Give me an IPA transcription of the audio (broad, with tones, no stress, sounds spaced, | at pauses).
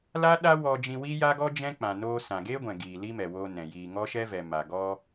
l a˦ ɗ a˦ w ɔ˧ d͡ʒ ĩ˧ w i˦ j a˦ ɡ ɔ˦ d͡ʒ ɛ̃˦ k͡p ã˨ n oː˧ s ã˨ ɡ eː˦ ɡʷ ɛ̃˨ ɡ iː˨ l i˦ m ɛ˨ w oː˧ n ɛ̃˨ j iː˨ ŋ ɔ˦ ʃ ɛ˦ v ɛ˨ m a˨ ɡ ɔ˦